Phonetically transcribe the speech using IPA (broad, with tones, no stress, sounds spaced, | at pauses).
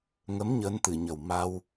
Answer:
ŋ ə˧˥ m ɲ əː˧˥ n t̪ ɨ˨˩˨ ɲ ə˨˩ w m a˧ w